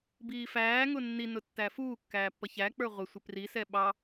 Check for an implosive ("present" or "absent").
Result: present